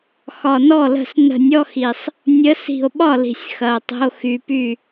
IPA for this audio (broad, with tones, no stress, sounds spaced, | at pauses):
x ɒ˨˩ n ɔ˥˩ l ə̤˥˩ s n ə̤˧˩˧ nʲ ɔ˧˥˧ x i˨˩ sˤ | nʲ ə˨˦ s i̤˨˩ o̯ ɓ ɒ˥˩ l i̤˨˩ sʲ x ɐ˨˩ o̯ tˤ ə̤˧˥˧ o̯ x y˨˩ p y˥˩